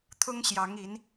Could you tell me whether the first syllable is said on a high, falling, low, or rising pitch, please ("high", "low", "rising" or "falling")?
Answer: high